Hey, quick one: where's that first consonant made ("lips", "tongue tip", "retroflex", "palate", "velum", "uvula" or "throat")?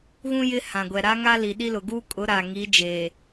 velum